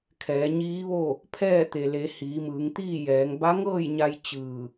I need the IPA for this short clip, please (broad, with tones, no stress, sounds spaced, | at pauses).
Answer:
kʰ ɛː˩˧ ɲ iː˧˥ ʋ o˥˨ | pʰ ɛː˥˨ t̪ e˩ l e˩˧ h iː˩˧ m ɯː˩˧ ŋ t̪ iː˥˨ j ɛː˩˧ ŋ b a˧˥ ŋ ɤː˥˨ j ɲ a˧ j t͡ɕ ɯː˧˩